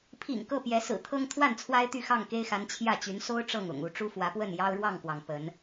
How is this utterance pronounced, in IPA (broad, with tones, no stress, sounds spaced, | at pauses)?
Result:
pʰ ḭ˨˩ ŋ k ɤ˥˨ p j ɛ˨˦ s ɹ̩˨˩ t̪ʰ ɤ˦ ŋ t̪ʰ w a˥˨ n t͡sʰ w a˦ ɪ̯ t̪ y˥˨ x ɑ˥˨ ŋ k e˦ ɪ̯ x a˨˦ n t͡ɕʰ j ä˥˨ t͡ɕ y˨˦ n s o˦ ʊ̯ ʈ͡ʂ ɤ˥˨ ŋ ʊ̰˨˩ ŋ u˥˨ ʈ͡ʂ u˦ f w ä˨˦ p w ə˥˨ n j ɑ˦ ʊ̯ ɻ w ɑ˥˨ ŋ k w ɑ˩ ŋ p ə˨˦ n